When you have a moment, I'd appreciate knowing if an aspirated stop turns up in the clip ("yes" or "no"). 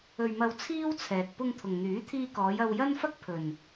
yes